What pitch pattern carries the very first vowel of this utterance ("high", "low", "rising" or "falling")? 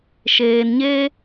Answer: low